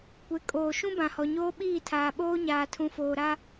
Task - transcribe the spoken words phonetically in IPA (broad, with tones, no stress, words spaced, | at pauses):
kʷe˨˦kʼoː˨ʃũ˦ bã˨hɔ˨ɲoː˦ ɓiː˦˨tʰaː˨ɓoː˦ ɲaː˨tʰũ˨foː˨ ɾa˦